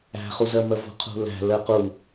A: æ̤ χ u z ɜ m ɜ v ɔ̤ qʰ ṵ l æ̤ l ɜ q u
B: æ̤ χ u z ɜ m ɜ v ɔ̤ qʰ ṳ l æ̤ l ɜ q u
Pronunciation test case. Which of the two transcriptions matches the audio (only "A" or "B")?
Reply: B